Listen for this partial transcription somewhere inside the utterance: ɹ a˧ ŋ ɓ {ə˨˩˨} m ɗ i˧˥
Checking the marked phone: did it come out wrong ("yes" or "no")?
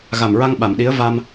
yes